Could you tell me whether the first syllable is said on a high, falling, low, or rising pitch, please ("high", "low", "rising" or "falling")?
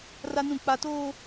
high